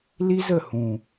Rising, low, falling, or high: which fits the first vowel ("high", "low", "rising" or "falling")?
high